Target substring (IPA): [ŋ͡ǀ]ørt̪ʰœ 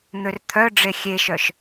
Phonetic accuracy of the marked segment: incorrect: n̪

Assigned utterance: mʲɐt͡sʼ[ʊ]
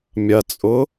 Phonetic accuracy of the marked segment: correct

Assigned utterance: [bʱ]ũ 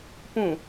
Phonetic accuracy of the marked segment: incorrect: p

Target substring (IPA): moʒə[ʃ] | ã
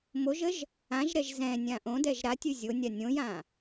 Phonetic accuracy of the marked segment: incorrect: ʒ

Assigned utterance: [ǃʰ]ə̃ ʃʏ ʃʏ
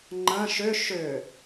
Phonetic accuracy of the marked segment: incorrect: ŋ͡ǃ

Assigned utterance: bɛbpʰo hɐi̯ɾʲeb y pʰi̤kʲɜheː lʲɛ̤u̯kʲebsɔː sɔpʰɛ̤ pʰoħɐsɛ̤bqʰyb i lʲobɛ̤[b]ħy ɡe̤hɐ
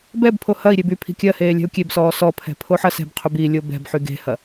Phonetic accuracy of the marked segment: correct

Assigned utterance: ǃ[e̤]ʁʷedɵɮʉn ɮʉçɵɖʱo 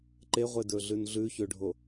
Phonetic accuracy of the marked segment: incorrect: e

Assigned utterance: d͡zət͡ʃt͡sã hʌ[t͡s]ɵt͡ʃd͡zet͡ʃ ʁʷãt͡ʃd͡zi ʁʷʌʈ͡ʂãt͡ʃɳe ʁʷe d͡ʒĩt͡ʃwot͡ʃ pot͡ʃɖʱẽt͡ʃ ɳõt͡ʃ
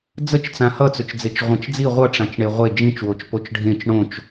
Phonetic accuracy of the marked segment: correct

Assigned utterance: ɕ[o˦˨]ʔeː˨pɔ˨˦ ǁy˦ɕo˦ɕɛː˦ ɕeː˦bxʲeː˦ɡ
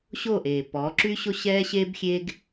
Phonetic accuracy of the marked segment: correct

